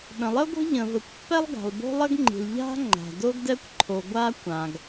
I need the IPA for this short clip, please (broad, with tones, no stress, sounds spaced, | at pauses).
ɗ ə̃˩ lˠ ə˥ ɡʷ ə̤˥ ʎ ə̃˩ v ə˩ kʷ pː ɛ˥ lˠ ɡ a̤˩ lˠ b o̤˥ lˠ ə˥ ɡ ŋ͡ǃ i̤˩ l ʎ a̤˥ ŋ͡ǃ a̤˩ d o˥ ɡ d ɛ˥ kʷ ǃʰ o˩ ɡʷ a˥ kʷ ã˩ ɡ